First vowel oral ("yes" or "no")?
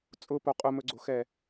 yes